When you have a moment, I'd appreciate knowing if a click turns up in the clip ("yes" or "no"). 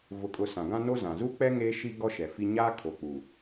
no